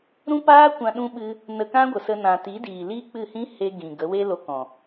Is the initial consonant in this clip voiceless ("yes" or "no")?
no